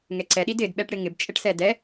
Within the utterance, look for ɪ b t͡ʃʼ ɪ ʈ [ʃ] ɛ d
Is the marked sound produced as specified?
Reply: no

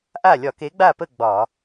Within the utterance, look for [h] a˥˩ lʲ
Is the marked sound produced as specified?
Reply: no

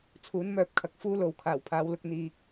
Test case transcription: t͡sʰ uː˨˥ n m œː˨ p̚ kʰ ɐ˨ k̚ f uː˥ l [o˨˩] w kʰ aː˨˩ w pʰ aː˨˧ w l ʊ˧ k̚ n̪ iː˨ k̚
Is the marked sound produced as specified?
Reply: no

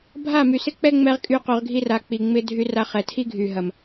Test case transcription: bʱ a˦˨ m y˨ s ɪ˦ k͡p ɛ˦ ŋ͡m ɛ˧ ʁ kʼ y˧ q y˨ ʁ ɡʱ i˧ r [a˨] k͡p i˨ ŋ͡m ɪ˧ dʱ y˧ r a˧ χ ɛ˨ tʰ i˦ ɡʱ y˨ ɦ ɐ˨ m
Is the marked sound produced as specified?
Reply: yes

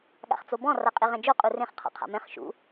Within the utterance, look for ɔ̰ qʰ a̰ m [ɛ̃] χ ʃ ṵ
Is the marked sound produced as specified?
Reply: yes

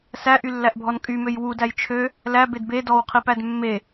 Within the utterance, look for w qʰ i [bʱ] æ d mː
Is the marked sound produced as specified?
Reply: no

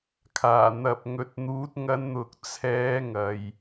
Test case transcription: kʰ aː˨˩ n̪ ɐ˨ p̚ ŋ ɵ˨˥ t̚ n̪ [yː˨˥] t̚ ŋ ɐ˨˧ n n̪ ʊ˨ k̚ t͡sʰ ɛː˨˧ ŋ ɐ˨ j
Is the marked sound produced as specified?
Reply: no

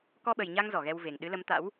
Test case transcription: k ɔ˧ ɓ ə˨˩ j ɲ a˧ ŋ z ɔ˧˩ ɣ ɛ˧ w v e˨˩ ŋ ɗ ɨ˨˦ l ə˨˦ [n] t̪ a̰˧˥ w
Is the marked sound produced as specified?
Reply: no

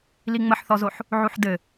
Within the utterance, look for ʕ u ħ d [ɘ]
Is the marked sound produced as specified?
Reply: yes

